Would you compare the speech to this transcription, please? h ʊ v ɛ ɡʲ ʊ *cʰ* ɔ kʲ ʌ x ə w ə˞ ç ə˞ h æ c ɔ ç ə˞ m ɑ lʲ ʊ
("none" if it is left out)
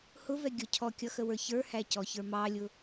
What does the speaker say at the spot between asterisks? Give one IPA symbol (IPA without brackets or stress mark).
cʰ